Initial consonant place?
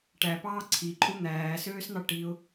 retroflex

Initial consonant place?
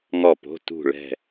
velar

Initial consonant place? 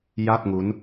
palatal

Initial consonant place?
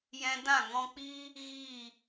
palatal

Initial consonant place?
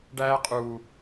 retroflex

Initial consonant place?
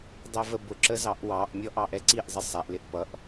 alveolar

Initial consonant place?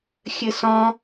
velar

